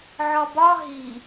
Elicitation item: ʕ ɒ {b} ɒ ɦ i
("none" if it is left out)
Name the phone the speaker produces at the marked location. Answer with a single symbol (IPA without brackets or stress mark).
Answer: b